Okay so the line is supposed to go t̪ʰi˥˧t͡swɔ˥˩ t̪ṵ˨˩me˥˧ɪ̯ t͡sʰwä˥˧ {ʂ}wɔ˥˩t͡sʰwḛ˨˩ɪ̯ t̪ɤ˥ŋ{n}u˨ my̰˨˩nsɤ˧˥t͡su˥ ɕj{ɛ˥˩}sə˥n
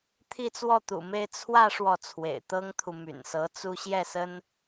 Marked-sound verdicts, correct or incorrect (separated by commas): correct, incorrect, correct